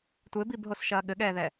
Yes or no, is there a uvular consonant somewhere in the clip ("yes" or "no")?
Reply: no